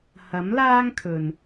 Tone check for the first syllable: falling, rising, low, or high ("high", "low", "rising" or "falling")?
rising